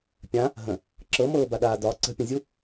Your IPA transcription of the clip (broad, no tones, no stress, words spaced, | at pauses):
pʲã | ɦə̃ | ǁɤmɤːba ɗaːdɒ ǀə̤pʲə̃zʲu